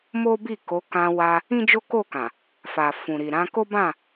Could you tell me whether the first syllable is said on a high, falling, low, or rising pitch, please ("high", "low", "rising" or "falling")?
high